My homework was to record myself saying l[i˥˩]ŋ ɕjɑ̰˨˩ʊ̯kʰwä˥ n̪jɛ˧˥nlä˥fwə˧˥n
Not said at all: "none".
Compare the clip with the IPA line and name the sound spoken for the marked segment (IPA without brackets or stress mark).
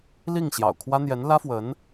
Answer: i˥˩